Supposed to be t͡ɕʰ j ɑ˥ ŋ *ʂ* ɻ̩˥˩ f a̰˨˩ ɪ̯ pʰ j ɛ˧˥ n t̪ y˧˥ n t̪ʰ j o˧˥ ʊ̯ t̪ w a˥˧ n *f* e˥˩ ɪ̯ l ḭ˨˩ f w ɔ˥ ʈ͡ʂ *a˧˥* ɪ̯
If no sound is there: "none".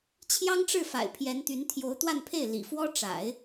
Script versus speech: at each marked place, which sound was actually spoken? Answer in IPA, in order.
ʈ͡ʂ, pʰ, a̰˨˩˦

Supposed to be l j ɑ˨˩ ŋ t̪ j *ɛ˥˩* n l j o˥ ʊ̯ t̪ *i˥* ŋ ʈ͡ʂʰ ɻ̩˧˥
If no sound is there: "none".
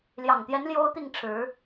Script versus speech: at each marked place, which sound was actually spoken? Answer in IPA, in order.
ɛ˧˥, i˥˩

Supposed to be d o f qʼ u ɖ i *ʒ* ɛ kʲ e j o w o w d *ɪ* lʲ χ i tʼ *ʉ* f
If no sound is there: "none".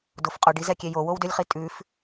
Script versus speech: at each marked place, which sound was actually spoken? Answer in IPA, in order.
z, ʏ, ʉ

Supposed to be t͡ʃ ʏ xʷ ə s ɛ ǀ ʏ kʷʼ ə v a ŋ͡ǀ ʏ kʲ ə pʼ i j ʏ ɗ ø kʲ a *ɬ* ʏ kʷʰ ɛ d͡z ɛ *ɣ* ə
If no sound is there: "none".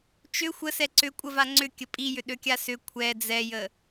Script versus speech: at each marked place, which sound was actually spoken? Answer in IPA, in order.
s, j

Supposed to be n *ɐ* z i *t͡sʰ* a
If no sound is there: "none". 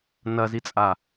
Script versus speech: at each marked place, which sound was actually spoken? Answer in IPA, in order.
ɐ, t͡sʼ

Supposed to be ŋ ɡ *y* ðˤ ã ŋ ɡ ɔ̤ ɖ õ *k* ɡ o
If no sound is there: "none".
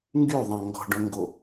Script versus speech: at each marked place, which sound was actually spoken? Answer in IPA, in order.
y, ŋ

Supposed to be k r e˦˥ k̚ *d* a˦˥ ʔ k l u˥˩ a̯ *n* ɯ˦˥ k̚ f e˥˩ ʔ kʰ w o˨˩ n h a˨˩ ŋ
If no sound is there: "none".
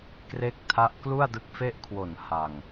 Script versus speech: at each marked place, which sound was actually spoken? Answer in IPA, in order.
tʰ, d

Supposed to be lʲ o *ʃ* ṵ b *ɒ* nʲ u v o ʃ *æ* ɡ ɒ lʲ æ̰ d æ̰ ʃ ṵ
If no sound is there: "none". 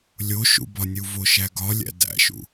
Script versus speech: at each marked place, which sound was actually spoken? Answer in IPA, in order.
ʃ, ɒ, æ

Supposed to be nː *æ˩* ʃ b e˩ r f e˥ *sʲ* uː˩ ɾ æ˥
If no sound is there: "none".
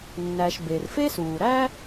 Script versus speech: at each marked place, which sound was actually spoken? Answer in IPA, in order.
æ˩, s

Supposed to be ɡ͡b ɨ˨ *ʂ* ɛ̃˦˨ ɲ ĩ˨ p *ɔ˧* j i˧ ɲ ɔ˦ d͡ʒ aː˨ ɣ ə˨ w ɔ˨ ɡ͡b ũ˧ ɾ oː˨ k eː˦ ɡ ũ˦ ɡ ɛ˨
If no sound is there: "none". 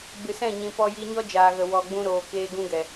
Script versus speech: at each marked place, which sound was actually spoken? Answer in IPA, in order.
s, ɔ˧

